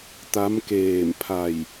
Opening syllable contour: rising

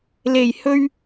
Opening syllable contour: low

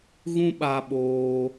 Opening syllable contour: high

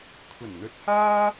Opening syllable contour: low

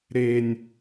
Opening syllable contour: low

